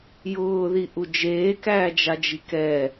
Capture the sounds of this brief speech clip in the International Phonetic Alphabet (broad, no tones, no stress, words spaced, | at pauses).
jʊːðiʔu d͡ʒeːkæːd͡ʒad͡ʒi kɛ